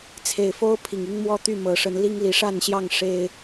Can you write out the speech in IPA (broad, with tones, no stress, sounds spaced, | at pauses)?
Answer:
t͡sʰ e˨˩ ɪ̯ f o˦ ʊ̯ pʰ i˨˩ ŋ i˦ ŋ m w ɔ˦ t̪ y˥˨ m ɤ˨˦ ʂ ə˨˦ n l i˦ ŋ l i˨˦ ʂ a˥˨ n ɕ j ɑ˥˨ ŋ ʂ e˦ ɪ̯